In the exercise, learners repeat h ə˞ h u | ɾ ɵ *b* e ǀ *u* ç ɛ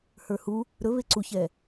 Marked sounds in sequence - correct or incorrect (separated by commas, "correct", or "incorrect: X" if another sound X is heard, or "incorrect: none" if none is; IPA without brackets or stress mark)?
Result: incorrect: β, correct